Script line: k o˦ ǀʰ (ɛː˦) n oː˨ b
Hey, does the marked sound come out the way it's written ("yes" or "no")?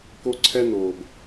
no